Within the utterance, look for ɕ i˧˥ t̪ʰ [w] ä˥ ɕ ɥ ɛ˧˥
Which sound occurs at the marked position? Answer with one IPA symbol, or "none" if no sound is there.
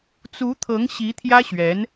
j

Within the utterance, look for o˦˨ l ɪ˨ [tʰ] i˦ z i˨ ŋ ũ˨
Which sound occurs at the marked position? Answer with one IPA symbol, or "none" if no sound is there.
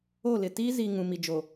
t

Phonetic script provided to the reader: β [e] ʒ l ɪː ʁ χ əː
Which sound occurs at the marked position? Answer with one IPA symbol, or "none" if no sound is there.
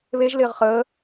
e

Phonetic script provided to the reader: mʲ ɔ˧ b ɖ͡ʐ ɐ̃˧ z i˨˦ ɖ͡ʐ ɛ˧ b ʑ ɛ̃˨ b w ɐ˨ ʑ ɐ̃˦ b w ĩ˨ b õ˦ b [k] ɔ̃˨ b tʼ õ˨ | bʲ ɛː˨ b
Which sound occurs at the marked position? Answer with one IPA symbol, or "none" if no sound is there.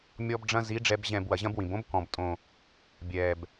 k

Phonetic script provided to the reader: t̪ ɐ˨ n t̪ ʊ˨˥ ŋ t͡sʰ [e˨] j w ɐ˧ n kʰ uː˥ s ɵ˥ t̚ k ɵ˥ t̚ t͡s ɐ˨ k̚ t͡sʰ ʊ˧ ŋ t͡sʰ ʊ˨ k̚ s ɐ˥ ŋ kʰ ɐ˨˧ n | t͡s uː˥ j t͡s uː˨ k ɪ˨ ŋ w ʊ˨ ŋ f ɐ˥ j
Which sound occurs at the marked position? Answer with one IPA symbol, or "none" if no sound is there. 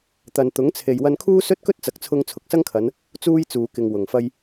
e˨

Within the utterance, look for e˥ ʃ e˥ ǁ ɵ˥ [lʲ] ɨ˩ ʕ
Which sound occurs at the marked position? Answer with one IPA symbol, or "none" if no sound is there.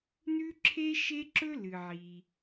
l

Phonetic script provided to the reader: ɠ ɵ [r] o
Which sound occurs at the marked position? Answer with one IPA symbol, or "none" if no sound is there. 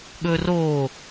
r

